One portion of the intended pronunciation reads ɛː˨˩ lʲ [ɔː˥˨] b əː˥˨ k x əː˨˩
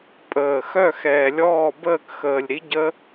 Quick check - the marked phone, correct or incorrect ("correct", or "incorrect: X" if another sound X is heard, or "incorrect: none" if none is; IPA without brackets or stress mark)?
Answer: correct